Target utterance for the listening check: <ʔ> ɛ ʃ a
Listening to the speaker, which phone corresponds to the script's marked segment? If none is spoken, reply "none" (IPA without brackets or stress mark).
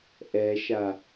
ʔ